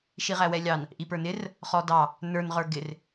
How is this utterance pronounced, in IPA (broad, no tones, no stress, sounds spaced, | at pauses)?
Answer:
ʃ i ʁ æ w ɛ lʲ ɑ n | ʔ i p ə˞ n ɪ r | χ ɔ d ɑ | n ə˞ n ʁ ə˞ ɡ ɪ r